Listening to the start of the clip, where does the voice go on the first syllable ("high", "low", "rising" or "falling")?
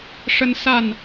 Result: high